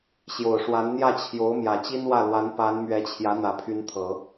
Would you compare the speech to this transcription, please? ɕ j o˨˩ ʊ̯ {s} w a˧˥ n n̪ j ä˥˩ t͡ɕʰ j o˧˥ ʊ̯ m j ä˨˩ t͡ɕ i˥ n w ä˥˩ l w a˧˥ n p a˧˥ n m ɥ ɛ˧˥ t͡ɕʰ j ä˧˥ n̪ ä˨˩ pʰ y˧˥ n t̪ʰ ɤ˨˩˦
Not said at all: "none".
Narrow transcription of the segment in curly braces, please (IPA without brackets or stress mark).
ʂ